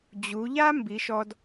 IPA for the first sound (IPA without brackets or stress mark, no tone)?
d͡ʑ